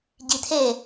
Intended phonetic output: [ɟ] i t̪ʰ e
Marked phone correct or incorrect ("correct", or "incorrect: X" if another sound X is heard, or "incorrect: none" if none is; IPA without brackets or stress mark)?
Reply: correct